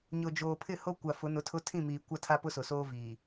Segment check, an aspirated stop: present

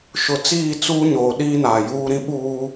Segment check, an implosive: present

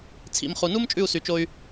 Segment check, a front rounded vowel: present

